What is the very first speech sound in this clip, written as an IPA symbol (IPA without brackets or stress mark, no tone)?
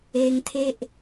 e